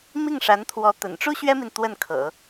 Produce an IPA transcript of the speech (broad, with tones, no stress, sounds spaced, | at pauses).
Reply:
m i˥˩ ŋ ʂ a˧˥ n t̪ʰ w ɔ˧˥ t̪ ə̰˨˩ n ʈ͡ʂ u˥ ɕ ɥ ɛ˥ m i˨ n t̪ w ə˥˩ n kʰ ɤ̰˨˩˦